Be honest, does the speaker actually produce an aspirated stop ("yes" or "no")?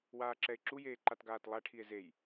yes